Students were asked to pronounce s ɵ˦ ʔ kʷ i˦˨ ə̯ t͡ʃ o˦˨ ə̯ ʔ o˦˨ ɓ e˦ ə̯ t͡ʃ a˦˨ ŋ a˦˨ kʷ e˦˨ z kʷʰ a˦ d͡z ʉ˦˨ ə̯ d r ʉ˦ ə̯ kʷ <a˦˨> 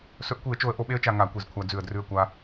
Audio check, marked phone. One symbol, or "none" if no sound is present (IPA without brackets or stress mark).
a˦